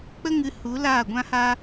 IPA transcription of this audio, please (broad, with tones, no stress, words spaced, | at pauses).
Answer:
k͡pə˦ŋɨ˧ hu˨˦ laː˦˨ɡʷã˦ha˦